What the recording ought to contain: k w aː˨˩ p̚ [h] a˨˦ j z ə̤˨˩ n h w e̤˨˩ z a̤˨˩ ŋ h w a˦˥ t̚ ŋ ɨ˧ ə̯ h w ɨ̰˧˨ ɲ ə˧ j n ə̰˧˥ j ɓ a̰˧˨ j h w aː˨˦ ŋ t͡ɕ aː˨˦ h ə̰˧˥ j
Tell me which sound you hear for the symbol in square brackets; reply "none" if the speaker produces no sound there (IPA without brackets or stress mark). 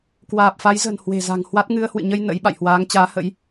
f